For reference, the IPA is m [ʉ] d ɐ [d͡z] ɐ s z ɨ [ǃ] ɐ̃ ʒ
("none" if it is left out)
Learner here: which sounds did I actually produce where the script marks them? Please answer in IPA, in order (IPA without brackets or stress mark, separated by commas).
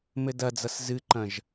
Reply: ɘ, d͡z, ǃ